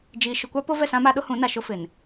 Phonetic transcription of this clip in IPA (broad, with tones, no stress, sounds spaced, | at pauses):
d͡ʒ iː˨ ʃ ʊ˨ kʷ a˦ p o˦ v ɛ˦˨ s ã˦ m a˦ ɗ ʊ˦ h ũ˨˦ n a˨ ʃ ʊ˦ f ɪ˨ n